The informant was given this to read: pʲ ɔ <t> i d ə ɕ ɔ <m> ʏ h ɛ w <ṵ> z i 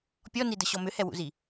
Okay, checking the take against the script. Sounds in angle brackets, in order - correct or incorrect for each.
incorrect: n, correct, correct

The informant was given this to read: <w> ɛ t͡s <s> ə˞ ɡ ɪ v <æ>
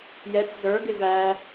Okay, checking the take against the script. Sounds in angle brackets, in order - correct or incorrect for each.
incorrect: j, incorrect: z, correct

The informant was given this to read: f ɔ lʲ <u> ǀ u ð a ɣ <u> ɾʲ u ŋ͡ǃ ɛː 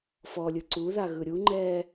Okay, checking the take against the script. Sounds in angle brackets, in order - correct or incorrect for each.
incorrect: ɯ, incorrect: ɯ

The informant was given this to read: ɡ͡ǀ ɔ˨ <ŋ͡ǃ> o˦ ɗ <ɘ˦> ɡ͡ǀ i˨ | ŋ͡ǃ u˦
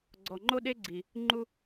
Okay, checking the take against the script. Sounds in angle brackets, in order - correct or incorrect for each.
correct, incorrect: e˦

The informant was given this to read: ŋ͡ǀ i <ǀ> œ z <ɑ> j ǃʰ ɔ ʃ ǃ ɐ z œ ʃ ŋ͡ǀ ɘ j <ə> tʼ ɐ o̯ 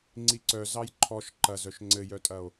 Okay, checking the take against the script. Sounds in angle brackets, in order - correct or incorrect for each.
correct, correct, incorrect: œ

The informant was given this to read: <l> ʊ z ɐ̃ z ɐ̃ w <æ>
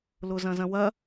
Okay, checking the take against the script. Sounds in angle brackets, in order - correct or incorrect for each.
correct, incorrect: ɐ

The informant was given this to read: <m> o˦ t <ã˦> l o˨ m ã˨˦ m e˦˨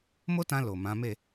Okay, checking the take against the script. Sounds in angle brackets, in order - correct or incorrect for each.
correct, incorrect: ã˧

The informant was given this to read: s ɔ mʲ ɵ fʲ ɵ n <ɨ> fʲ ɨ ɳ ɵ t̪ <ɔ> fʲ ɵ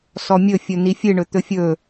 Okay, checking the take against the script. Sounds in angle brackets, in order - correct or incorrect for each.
incorrect: i, incorrect: ɵ

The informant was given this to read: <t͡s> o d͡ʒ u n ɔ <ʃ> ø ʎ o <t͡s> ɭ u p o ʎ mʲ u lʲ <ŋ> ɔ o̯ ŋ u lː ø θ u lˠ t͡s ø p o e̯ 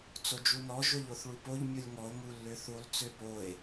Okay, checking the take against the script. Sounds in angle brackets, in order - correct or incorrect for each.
correct, incorrect: ʒ, incorrect: θ, correct

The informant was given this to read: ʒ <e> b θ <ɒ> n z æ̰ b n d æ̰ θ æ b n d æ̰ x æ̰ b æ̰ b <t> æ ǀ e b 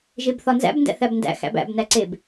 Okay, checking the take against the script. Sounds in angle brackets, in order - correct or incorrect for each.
correct, correct, incorrect: n

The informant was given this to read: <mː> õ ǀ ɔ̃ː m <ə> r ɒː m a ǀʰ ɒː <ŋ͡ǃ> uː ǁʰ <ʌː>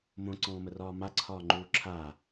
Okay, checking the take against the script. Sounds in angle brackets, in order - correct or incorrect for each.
incorrect: m, correct, correct, incorrect: aː

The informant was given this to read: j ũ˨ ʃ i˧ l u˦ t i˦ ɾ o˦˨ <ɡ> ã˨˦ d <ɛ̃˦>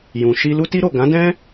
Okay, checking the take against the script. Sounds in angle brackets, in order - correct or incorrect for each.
correct, correct

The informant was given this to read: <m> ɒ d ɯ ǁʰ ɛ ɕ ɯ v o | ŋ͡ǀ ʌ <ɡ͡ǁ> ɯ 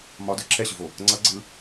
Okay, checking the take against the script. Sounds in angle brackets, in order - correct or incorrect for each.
correct, incorrect: ɡ͡ǀ

